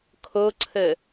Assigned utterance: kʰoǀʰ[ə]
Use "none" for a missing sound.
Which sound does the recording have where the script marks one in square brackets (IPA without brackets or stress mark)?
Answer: ə